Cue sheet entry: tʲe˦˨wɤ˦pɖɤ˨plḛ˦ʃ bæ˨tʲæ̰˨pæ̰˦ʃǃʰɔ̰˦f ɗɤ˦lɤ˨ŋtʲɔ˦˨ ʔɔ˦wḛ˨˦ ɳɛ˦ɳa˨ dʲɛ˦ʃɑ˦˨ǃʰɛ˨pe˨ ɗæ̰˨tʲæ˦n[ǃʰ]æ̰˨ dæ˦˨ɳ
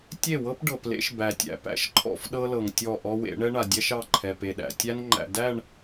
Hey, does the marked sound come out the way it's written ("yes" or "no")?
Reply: no